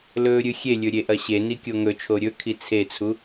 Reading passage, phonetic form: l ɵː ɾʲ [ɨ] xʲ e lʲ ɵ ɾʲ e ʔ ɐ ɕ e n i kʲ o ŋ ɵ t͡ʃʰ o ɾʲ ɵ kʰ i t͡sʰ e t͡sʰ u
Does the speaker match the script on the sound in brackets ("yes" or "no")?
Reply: yes